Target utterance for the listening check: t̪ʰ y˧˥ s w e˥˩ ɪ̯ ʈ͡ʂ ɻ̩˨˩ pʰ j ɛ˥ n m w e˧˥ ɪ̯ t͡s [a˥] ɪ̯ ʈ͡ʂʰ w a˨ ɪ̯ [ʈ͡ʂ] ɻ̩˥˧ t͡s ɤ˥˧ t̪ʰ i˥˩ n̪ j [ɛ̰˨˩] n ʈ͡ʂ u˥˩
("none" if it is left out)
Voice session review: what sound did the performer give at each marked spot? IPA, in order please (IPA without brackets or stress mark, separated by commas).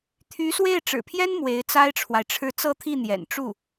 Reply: a˥, ʈ͡ʂʰ, ɛ̰˨˩